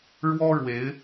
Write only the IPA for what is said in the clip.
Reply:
ɻwɔ˥ ɻwe˧˥ɪ̯

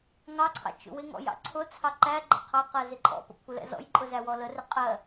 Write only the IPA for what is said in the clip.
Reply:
ŋɑǀʰɑ̰ t͡ʃṵwɪŋɔ̰j ɑ̰ǀʰʊt͡sʰɑ ǃæɡ͡ǃə̰ qʰɑqɜ zɪǃʼɔ̰pə̰ kʷʰɪlɛ̰zɔ̰jǃʼʊ zæwɔlərɪ qʼɜ

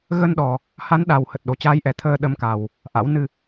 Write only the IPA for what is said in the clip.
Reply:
ɣə˧nɗɔ˨˩ | ha˨˦nɗa˨˩w hə˨˩t̚ɗo˨˩t͡ɕaː˨˦jʔɛ˨˩ t̪ʰəː˧ ɗə˨˦mka˨˩w | ʔa̰˧˥w nɨ˧

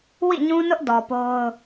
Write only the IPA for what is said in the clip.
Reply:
wḭ˦˨ɲũ˦nʊ˦ʔ dɔ˨po˦ʊ̯

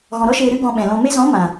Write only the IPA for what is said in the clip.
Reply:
ɣɔ̃˨ɾɔ˦ʃeː˧ ɾɨ˦ɡɔ̃˧ɓɛ̃˨lɔ̃˧ me˧zɔ̃˨˦ mã˨

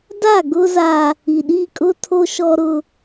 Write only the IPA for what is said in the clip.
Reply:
da˦˨ɡʊ˦ za˦ | i˨ɗi˦˨kʼʊ˦ tʰo˦ʃɔ˦ɾʊ˦

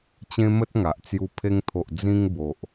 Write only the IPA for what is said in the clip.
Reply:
t͡ɕẽ˦mə˦t̚ŋa˨ʔt͡sju˧ pʰe˧ŋt̪ʰo˨ʔ d͡zĩ˧ŋ bo˨ʔ

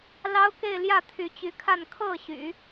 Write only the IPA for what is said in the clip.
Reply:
lɑ˥ʊ̯ke˥˧ɪ̯ ljä˥˩t̪ʰy˧˥t͡ɕy˧˥kʰa˥˧n kʰɤ˥˩ ɕy̰˨˩˦

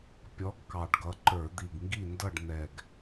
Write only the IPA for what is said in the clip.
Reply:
pʲɔ˨˥ɡkɑ˨˩ɖɡʌ˨˥ ǃə˞˧˩˧d̪i˨˩ɡŋɡi˥˨ndʌ˥˨ɖ n̪ɛ˨˩ɡ

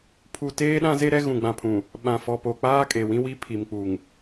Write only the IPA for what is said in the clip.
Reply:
pʰu˨ teː˦ɗã˦ze˦ ɾɛ˦ ɣũ˨ɡ͡bã˨pʰũ˨ | ɓã˨fɔ˨po˨k͡paː˦ kʼe˨ wĩ˦wi˦ pʰi˨mk͡pu˨ŋ

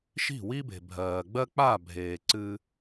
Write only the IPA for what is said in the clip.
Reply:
ʃi̤˦˨wi˦be̤˨ bʱɜː˨ɡ͡bɜ˦ k͡pa˦˨ bʱeː˨ǀɨ˧

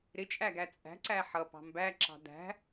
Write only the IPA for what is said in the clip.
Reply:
ɾɪt͡ʃʼæ ɡæt͡sʼæ̤ǀæ ħʌ pɑ̤mbæǁɑ̤ dæ̤

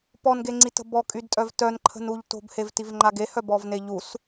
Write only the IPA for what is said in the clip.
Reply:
pɔnɡeŋ͡ǀitə̤ bɔkʼydtʼœv tœnǃʰə̤nuʎ to̤bhevtivŋ͡ǃa ɡehœbɔvne ʎus

